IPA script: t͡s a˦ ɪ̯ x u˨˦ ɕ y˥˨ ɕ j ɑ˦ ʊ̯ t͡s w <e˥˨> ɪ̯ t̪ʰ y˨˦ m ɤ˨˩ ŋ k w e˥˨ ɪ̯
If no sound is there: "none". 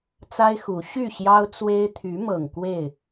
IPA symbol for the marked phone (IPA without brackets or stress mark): e˦